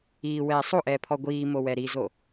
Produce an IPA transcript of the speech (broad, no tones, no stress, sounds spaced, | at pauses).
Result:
iː w ɛː sˤ o ʔ ɛː pʰ ɔ ɡʷ iː m o w ɛ ɾ i z o